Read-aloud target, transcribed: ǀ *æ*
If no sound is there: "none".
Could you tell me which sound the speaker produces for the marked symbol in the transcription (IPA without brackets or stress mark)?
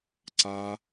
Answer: a